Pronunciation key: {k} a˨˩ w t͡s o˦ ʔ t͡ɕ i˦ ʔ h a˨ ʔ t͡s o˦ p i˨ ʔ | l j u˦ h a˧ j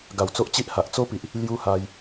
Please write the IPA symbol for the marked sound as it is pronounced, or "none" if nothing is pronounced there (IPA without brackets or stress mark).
ɡ